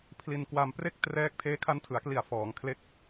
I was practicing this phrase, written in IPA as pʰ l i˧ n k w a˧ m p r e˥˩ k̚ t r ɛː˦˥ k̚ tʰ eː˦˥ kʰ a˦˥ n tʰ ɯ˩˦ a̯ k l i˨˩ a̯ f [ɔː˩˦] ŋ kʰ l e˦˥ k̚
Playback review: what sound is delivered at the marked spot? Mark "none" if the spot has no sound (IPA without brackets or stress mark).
ɔː˩˦